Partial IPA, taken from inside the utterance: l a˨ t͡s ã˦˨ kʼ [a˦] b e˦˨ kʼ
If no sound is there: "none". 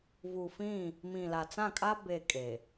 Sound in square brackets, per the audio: a˦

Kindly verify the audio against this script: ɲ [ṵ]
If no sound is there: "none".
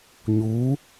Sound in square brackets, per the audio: u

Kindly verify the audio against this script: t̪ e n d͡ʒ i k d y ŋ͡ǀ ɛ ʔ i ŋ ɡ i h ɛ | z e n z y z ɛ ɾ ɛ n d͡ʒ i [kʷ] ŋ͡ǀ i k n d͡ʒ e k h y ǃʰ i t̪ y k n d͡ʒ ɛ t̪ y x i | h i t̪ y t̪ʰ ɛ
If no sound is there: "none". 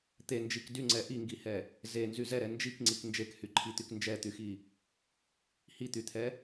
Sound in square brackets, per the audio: k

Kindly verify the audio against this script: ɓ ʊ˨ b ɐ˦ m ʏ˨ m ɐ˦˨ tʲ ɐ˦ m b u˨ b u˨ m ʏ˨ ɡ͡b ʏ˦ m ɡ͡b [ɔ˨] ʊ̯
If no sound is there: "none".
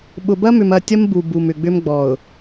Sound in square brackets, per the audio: ɔ˨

